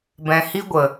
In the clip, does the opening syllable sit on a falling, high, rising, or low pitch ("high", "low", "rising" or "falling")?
low